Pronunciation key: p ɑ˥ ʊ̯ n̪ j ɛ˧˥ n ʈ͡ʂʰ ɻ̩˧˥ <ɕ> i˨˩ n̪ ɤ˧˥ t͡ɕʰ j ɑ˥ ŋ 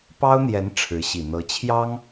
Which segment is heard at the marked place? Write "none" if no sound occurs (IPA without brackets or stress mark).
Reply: ɕ